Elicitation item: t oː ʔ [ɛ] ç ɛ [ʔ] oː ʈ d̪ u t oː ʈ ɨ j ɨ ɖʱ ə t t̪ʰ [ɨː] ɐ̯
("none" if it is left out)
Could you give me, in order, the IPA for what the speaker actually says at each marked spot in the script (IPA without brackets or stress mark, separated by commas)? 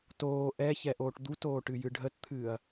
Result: ɛ, ʔ, ɨː